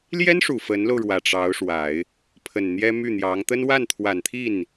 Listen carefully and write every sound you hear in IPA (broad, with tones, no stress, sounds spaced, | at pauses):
l j ɛ˥ n ʂ u˨˩ f ə˧˥ n l o˧ ʊ̯ ɻ w ä˨˩ ʈ͡ʂ ɑ˧˥ ʊ̯ ʂ w a˨˩˦ ɪ̯ | pʰ ə˨˩ n n̪ j ɛ˥ m y˥˩ n̪ j ɑ˧˥ ŋ t̪ ə˥ n w a˥˩ n t̪ʰ w a˨˩ n t̪ʰ i˥˩ n